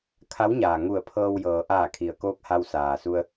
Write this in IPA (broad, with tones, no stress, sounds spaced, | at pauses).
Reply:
kʰ a˧˥ w ɲ aː˩ ŋ u˧˩ ə̯ pʰ ɤː˧ w j ɤː˩ ʔ aː˧˩ kʰ i˩ ə̯ k oː˧ k̚ h a˧ w s aː˩ s u˧ ə̯